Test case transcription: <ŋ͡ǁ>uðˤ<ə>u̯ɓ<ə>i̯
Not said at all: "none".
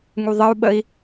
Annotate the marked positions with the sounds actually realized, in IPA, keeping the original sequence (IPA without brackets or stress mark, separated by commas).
ŋ, ə, ə